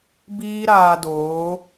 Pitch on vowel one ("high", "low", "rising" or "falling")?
high